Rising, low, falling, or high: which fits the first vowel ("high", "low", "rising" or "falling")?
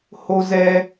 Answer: high